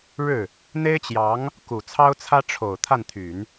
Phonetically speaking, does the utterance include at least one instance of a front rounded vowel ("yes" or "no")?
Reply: yes